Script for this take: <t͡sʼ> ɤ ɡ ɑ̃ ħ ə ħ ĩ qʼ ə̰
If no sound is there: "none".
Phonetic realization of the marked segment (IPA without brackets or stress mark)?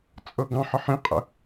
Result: t͡sʼ